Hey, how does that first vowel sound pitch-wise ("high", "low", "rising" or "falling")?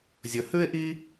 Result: low